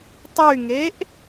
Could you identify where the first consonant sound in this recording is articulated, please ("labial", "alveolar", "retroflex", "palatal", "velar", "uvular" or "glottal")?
alveolar